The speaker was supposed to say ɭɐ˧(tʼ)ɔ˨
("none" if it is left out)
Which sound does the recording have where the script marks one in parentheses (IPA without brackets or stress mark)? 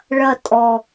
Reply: tʼ